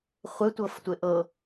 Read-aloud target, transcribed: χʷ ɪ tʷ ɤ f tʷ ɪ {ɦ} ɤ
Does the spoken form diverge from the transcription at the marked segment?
yes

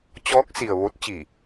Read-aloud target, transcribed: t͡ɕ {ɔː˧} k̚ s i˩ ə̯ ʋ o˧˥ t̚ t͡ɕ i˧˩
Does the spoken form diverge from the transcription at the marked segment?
yes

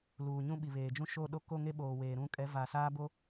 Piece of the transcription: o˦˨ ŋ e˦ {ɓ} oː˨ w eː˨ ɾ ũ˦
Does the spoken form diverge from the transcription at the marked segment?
no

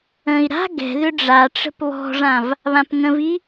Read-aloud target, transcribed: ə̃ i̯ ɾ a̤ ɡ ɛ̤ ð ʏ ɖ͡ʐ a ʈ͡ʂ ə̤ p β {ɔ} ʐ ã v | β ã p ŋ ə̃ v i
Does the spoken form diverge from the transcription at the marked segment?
yes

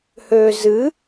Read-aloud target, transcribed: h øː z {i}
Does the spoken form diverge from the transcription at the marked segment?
yes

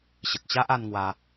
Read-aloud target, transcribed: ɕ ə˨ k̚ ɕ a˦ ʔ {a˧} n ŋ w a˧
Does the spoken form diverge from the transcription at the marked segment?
no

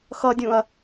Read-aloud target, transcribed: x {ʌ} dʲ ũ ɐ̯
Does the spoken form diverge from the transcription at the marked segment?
no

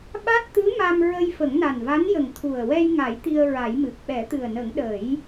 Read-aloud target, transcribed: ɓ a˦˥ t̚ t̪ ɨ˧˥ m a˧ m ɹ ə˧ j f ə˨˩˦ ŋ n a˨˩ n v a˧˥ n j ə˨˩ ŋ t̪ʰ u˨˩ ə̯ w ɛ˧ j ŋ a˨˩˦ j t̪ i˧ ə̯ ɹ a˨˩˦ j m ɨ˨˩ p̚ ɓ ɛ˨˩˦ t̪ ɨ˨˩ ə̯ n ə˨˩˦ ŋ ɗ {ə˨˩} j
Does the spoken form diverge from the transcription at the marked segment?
yes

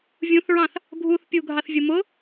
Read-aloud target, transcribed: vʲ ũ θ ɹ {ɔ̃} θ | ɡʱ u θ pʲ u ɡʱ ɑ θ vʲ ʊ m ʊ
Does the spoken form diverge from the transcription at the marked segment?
yes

